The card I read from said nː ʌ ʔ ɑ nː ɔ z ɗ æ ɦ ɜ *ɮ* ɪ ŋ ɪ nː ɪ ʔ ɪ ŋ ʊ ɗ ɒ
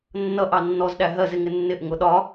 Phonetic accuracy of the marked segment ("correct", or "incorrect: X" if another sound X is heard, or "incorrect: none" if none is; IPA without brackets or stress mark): incorrect: z